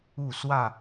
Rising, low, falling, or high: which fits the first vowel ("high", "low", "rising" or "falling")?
falling